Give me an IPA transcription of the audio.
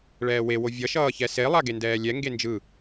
ɭ ɛː w e w o vʲ ʌ ʃ ʌː ç ɛ s e lˠ a ɡ e n d ɛː lʲ ɛ ŋ ɡ e n d͡ʒ ɯ

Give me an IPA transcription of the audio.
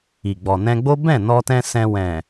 i˨ ɡ͡b ɔ˨ n ɛ̃˧ ɡ͡b o˦ b ɛ̃˦˨ n ɔ˧ t ɛ̃˧ s ɛ̃˧ w ɛ̃˨

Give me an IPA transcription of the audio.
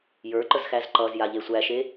j ə˞ ǃ ə z x æ z ǃ ʌ z j a ʎ e sʷ æ ʃ e

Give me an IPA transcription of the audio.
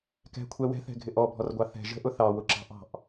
k ɛ̤ kʷʰ ɛ w ɛ̤ θ ɛ̤ ɡʱ ɪ ʔ ɔ bʱ ɔ r ɡʷ ɑ θ ɛ̤ ʒ ə̤ ʔ ʊ θ ɑ w ʊ ǁ ɑ̤ ʔ ɑ̤ ʔ

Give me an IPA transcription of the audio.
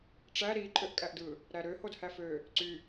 ʈ͡ʂ æ ɾ i ǃʼ ø ʔ kʼ æ ʔ d ɯ | ɾ æ ɾ ø h o d h æ f ø | ǀ y

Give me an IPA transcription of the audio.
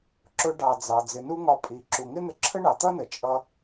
ǁ ʊ˧ ɖ ɑ˩ d͡z ɑ˩ d͡z ɪ˩ n u˥ ŋ ɒ˧ pʼ i˩ ǁ u˩ ŋ ɪ˥ n̪ ə˧ ǁʰ ə˥ ɳ ɑ˩ t̪ ʌ˥ n ə˩ t͡ʃʼ ʌ˧

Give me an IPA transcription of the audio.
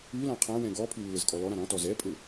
ʉ l ã qʰ ã w ɛ̃ ɡ ɔ pʰ ʉ lː ɘ z kʼ ɔ l ɔ ɾ ã ɾ ɔ̃ t ɔ z ɛ pʼ ɘ

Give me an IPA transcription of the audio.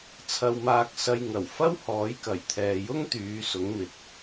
t͡sʰ ɐ˧ w m aː˧ k̚ s ɐ˧ j ŋ ɐ˨˩ w f ɐ˥ w h ɔː˨˥ j k ɐ˨˩ j t̪ʰ ɛː˨ j ʊ˥ ŋ t̪ yː˨˧ s ʊ˨˥ ŋ m ɪ˨˥ k̚

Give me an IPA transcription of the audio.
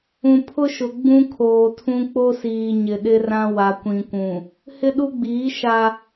ũ˨ pʰ ʊ˦ ʃ ʊ˨ ɡ͡b ũ˦ kʰ oː˨ tʰ ũ˦ k͡p o˦ s iː˨ ɲ ɪ˨ ɗ ɪ˦ r ã˦ w a˨ kʷ ĩ˨ kʷ ũ˨ | h ɪ˦ ɗ u˦ ɡ͡b iː˨˦ ʃ a˦

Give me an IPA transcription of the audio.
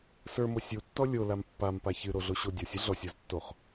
s ə˞ m o sʲ u tː ɔ lʲ o l a m pː a m p a ç ɨ ɾ o ɮ o ɕ o dʲ ɔ sʲ ɨ ɮ ɔ sʲ ə˞ z tː o χ

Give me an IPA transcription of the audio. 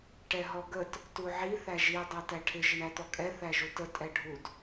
ʈ ɛ ɦ ɔ ɡ ə t | t u ʕ i θ æ ʒ i dˤ æ t æ ʈʰ ɪ ʒ ə ɳ æ t̪ ɔ kʼ ɛ θ æ ʒ u t ə tʼ ɛ ɖʱ u d

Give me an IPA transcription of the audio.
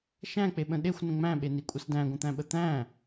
ʃ æ̃ k͡p e ɓ ə̃ ɗ e xʷ n ə̃ ŋ͡m æ̃ ɓ e n i kʷʼ ə s d æ̃ ɡʷ ə̃ t̪ æ̃ ɓ ə t̪ æ̃

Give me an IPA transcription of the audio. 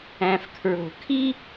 æ̃˩ f kʰ ɹ o̤˩ kʰ i˦

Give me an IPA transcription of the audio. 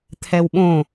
t̪ʰ ɛ w ɓ õ

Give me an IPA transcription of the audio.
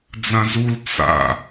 d͡z ã z u l t͡s a̰

